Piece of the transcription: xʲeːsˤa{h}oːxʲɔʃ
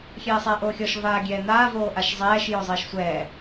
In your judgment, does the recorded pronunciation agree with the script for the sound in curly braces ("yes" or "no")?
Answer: no